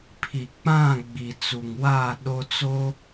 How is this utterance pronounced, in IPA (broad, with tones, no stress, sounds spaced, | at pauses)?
pʰ i˨ k͡p ã˦˨ ɡ͡b i˨ t͡s u˨ ŋ w aː˦˨ ɗ o˦ t͡s o˦